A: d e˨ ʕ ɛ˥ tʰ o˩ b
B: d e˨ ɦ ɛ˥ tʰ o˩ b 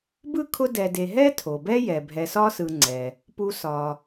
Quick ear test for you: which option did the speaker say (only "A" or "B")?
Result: B